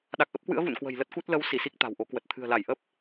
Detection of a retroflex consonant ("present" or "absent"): absent